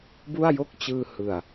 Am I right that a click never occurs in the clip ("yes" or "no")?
yes